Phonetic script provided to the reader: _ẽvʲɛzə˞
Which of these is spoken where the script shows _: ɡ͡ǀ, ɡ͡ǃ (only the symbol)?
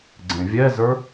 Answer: ɡ͡ǀ